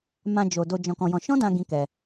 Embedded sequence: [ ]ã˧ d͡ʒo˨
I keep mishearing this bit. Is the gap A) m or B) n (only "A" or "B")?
A